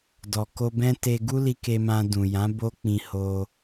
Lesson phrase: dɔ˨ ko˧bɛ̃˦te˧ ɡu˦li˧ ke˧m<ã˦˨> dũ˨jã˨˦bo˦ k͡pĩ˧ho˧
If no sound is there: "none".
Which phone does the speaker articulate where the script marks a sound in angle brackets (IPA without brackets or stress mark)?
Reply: ã˧